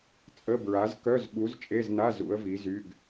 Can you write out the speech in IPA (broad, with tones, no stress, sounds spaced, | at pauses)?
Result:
t͡sʼ ə˧˥˧ b ɹ a˨˥ z k œ˧˥˧ z ɓ u˨˥ z t͡ʃʼ e˧˥˧ z n a˧˥˧ z ṵ˨˥ ə̯ v i˨˥ z y˧˥˧ ɡ